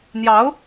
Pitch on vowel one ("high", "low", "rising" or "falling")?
rising